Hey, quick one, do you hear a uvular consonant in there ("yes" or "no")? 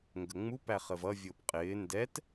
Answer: yes